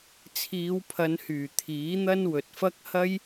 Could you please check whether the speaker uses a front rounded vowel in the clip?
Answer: yes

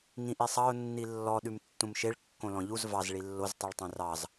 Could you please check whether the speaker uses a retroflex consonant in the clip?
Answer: yes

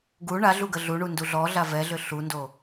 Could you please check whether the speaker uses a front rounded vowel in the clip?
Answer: yes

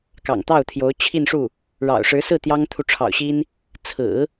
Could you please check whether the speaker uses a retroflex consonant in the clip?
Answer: yes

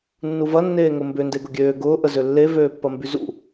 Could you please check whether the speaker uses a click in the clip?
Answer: no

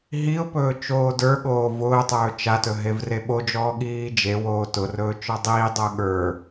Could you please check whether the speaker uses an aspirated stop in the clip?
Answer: no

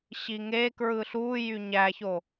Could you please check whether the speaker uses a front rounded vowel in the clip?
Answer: yes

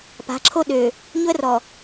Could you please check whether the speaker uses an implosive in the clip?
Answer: yes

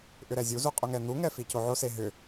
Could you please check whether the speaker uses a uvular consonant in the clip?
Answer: yes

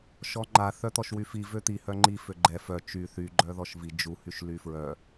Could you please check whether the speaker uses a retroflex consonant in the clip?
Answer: no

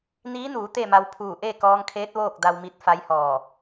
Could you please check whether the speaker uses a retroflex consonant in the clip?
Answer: no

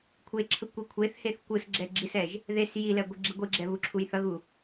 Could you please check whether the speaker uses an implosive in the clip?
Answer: no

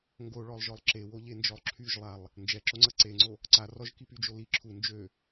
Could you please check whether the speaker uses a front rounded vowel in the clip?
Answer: yes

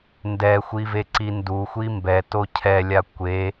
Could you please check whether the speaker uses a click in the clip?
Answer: yes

